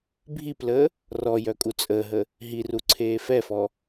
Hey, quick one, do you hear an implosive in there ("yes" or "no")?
no